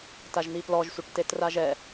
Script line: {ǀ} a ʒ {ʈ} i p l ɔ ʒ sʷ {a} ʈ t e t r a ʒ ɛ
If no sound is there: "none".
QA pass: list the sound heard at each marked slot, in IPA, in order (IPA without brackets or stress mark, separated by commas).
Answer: t, n̪, a